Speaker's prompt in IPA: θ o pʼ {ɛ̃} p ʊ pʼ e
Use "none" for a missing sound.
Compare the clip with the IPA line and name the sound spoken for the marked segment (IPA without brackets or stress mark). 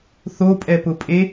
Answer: ɛ